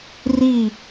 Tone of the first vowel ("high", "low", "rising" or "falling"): falling